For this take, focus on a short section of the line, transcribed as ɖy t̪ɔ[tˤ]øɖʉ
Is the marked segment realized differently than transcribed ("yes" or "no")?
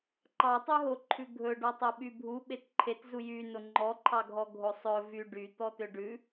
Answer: yes